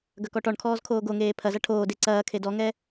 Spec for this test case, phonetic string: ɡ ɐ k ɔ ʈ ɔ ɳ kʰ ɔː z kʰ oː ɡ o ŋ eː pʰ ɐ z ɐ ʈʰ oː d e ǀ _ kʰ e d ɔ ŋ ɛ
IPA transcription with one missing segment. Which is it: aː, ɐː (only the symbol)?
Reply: ɐː